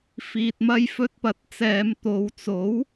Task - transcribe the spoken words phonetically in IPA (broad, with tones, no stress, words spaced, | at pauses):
fiː˨t̚mɐ˧jfɵ˧t̚pɐ˨t̚ t͡sɛː˨˧m t̪o˨˧w t͡so˨˥w